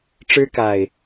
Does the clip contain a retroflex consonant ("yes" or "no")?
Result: yes